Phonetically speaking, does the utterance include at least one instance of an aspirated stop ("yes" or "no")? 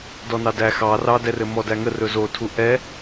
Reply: yes